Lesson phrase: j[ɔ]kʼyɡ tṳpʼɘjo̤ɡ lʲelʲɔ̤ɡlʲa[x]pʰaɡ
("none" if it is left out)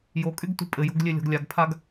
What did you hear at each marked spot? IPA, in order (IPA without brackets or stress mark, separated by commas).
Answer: o, ɡ